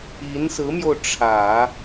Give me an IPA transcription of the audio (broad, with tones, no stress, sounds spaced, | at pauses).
i˧˥ n s ɹ̩˧˥ m j o˧ ʊ̯ ʈ͡ʂʰ ä˨˩˦